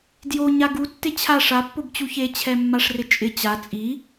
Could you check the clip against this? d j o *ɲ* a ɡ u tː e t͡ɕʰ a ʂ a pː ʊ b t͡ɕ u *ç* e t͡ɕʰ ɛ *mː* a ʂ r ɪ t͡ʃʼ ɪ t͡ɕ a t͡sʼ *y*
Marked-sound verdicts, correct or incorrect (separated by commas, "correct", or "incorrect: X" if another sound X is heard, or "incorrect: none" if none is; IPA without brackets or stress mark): correct, correct, correct, incorrect: i